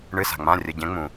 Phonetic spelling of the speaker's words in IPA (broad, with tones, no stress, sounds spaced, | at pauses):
ɳ ɨ˩˧˩ s a̤˩ ŋ͡m ã˩˧˩ rʲ ə˩˧˩ ɟ ɛ̃˨˦ ŋ͡m ũ˩